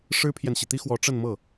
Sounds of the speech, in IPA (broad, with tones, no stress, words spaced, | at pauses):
ʂɻ̩˥pʰjɛ˨nɕi˩ t̪i˥xwɔ˧˥ ʈ͡ʂə˥˧nmɤ˥˩